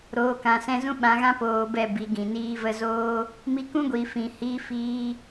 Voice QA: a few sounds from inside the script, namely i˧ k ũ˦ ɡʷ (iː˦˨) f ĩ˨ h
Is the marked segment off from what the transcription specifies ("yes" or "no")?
yes